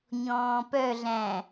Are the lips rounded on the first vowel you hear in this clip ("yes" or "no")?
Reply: yes